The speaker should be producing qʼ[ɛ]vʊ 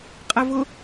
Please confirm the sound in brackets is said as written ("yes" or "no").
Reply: yes